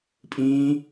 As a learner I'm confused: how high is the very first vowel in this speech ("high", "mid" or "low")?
high